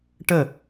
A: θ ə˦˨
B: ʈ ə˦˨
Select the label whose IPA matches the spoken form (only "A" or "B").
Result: B